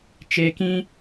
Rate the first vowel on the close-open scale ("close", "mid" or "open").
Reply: mid